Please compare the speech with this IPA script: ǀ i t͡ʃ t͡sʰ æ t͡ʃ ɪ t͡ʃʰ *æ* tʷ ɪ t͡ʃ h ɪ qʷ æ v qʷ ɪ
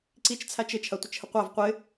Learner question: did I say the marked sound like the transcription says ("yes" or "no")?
no